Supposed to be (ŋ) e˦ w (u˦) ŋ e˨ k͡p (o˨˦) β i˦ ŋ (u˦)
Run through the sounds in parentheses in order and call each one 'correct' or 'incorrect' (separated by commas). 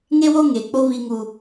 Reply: correct, incorrect, incorrect, correct